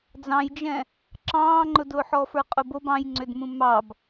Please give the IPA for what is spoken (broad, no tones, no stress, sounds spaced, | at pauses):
d͡z ɑ̃ j d͡ʒ ɛ̃ | ǁ ɑ̃ː ŋ͡ǃ ʊ d ʊː ħ ɔ f ə˞ qʼ ʊ b o b ɑ̃ j ŋ͡ǀ ʏ d m ũ m ɑ b